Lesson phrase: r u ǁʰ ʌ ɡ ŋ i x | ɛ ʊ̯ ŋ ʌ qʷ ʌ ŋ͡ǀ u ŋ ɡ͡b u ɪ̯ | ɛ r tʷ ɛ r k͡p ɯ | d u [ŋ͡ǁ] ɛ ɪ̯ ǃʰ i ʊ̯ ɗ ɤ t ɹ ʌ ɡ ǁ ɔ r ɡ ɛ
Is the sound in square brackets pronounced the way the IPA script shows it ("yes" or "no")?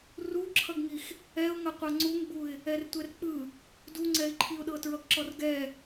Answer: no